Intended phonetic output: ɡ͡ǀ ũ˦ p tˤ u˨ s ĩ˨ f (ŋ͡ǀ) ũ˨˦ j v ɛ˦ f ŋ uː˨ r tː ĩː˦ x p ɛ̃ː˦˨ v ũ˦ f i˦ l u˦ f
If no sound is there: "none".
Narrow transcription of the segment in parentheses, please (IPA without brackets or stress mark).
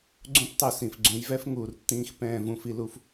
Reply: ɡ͡ǀ